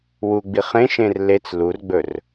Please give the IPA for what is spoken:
w u ɡ͡b i χ ẽ ʃ ẽ r l e t͡s l u r ɡ͡b ɵ r

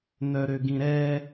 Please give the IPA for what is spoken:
n œ ɾ ø ɡ ĩ ɾ ɛ

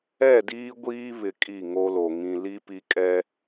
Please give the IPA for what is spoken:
ɛ˦˨ d iː˦ ɡʷ iː˦ β ɪ˨ kʼ i˦˨ ŋ o˦ l o˨ ŋ ĩ˨ l i˦ p i˦ kʼ ɛ˦

